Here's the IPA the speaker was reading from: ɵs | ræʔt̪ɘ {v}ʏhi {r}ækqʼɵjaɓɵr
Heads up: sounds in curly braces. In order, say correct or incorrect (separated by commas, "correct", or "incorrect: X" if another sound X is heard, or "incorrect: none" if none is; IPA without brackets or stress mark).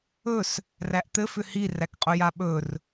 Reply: incorrect: f, correct